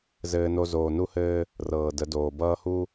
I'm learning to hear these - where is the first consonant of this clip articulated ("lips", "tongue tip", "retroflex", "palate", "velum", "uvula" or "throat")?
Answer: tongue tip